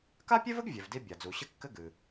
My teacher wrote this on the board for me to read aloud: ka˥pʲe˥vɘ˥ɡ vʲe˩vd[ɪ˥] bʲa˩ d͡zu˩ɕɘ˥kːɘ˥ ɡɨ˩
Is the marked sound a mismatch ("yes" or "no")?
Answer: yes